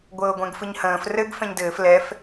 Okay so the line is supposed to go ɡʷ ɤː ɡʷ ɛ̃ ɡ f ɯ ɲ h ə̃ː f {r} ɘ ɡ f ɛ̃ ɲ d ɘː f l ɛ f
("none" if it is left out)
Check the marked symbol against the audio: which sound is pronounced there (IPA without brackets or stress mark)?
r